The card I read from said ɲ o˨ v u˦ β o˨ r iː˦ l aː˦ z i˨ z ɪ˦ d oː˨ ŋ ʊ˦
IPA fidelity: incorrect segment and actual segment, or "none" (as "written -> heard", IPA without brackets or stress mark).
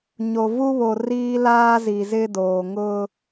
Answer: none